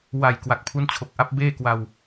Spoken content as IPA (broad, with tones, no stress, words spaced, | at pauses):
wa˨˩j kwa˨˩k̚pʰu˦˥n t͡ɕʰo˨˩k̚ʔa˦˥p̚beː˥˩kwa˧w